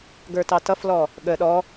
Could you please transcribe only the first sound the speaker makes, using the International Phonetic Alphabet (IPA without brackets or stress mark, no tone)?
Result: ɡ